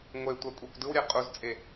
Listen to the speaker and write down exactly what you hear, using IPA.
ŋʷ e tʷ a kʷʼ ɛ kʷ d ɯ w ɾʲ ɛ qʼ u z t͡sʼ e

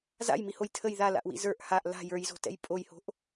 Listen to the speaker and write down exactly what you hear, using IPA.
z a̰ j m i h o j tʰ ə j ð a l a̰ ʔ w ḭ z ə˞ ʔ h a ʔ l a̤ j ə˞ j z o̤ t ɛ̰ j pʼ o j h o̤ ʔ

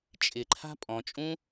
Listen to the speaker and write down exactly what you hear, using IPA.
t͡ʃʼ ɪ ǃʰ a̤ pʼ ɔ̃ t͡ʃʼ ũ

